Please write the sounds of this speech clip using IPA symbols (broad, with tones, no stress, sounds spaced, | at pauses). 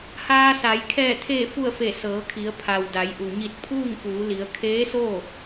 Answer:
h aː˧ s a˩˧ j kʰ ɛː˧˩ t̪ʰ eː˧˩ f u˧˩ ə̯ f e˧˩ s ɤː˩˧ kʰ i˩˧ ə̯ pʰ a˩ w d a˩˧ j ʔ u˩ ɲ i˧˩ t̚ pʰ uː˥˨ ŋ f uː˩˧ l i˩˧ ə̯ kʰ eː˧˥ s oː˥˨